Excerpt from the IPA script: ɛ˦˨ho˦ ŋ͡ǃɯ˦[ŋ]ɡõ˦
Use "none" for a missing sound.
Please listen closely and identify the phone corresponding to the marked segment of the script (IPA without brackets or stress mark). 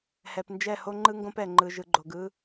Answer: ŋ